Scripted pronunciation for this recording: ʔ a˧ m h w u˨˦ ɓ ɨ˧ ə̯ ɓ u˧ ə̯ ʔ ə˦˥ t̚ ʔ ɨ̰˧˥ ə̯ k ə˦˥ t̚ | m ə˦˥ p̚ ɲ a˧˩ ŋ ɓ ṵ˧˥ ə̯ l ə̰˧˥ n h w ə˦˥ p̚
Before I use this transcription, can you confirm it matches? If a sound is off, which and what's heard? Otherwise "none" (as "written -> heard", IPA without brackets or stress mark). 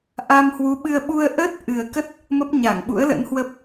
ɨ̰˧˥ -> ɨ˨˩